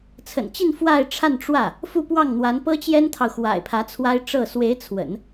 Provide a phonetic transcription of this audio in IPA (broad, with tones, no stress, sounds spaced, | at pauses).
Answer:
t͡sʰ ə̰˨˩ n t͡ɕ i˥˧ n f w a˥˧ ɪ̯ ʈ͡ʂʰ a˥˧ n ʈ͡ʂ w ä˥˩ | f u˥˧ p w ɑ˥˩ ŋ n̪ w a˧˥ n p ɤ˥ t͡ɕ j ɛ˥ n t̪ʰ ɑ˨ ʊ̯ x w a̰˨˩ ɪ̯ pʰ ä˧˥ t͡sʰ w a˥ ɪ̯ ʈ͡ʂ ɤ˥˩ s w e˧˥ ɪ̯ t͡sʰ w ə̰˨˩˦ n